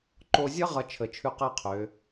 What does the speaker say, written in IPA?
ǃ o˧ zʲ ʌ˥ ʁ ʌ˧ t͡ʃʰ ə˩˧ t͡ʃʰ ʉ˧ q ɜ˥ qʰ ø˩˧

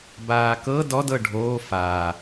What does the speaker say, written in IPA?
b aː k ɤ d ɔ d ɤ ɖʱ oː f aː

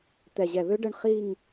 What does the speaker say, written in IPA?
t̪ ɛ˨˩ ʑ ɛ˨˩ β ø˦˥ ɖ ə˥˧ ɳ χ i˥˧ ŋ

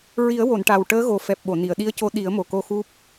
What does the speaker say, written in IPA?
ɹ i˨˩˦ ə̯ w o˨˩˨ n ʈ a˨˩ w ʈ əː˧˥ ɣ o˨˩ f ɛ˨˩ p̚ ɓ o˨˩˨ n i˨˩˨ ə̯ ɗ i˧˥ ə̯ c o˧˥ ɗ i˨˩˦ ə̯ m o˨˩ k o˧ x u˦˥ p̚

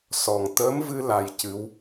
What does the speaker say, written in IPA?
s ɔ˨˩ ŋ t̪ əː˧˥ m v ɨ˧ l a˧ j c ɨ˧˥ w

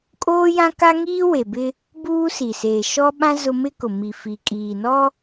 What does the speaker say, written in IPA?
kʼ oː˦ j ã˦ k a˦ ŋ iː˦ w e˨ b ɪ˦ | b uː˦ s i˨ s eː˨ ʃ ɔ˦ ɓ ã˦ z ʊ˦ m ɪ˦ k ʊ˨ m i˨ f iː˨ kʼ iː˨ n ɔ˦

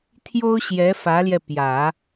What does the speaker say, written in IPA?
t̪ʰ j o˥ ʊ̯ ɕ j ɛ˧˥ f ä˧˥ l j ɛ˧ p j ä˨˩˦

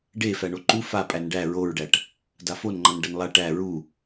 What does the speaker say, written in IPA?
ɖ e f æ ɳ o ǃ u f a pʼ æ n ɖ æ ɹ o ɹ ɖ æ ʈ | d a f o n ŋ͡ǃ ʌ n ɖ ʌ n lˠ a ʈ æ ɹ u

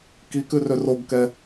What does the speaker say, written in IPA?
k i k ʉ r ø r o ɡ k ɛ

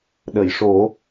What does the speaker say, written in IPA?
ɗ ə˨˩˨ j ʂ o˨˩˦

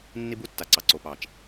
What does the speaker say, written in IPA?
nː i˦ b u˦ tː a˨ ǀ ɑ˨ ǀ o˨ p ɑ˨ t͡ʃ

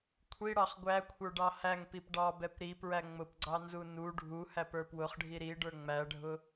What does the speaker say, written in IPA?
kʷʰ i ɽ ɑ χ ɡʷ æ kʷʰ ə˞ ɖ ɑ h æ ŋ p i p ɖ ɑ b ɛ p ɾ i p ɹ æ ŋ͡m ʊ p ɡ͡ǀ ɑ n z u n u ɖʱ u h æ p ə˞ p w ʊ χ ɖʱ i ɾ i ɖ ə˞ ŋ͡m æ ɖʱ ʊ

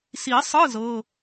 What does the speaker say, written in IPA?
s i˨˩˦ sˤ ɯ˧˥˧ z ɤ˧˥˧

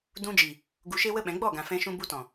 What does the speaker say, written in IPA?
d ũ˧ d͡ʒ i˨ | ɡ u˧ ʃ e˦ w ə˦ ɓ ɛ̃˨˦ ɡ͡b ɔ˦˨ ɡ ã˨ f ɛ̃˧ ʃ ũ˧ b u˧ t ɔ̃˨

